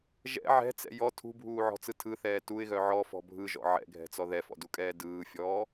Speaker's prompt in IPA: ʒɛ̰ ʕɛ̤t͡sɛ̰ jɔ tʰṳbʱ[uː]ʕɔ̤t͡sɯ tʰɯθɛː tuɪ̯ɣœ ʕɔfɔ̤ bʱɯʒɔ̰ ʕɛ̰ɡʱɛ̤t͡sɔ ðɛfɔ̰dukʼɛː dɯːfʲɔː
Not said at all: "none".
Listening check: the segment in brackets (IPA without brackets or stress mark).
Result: uː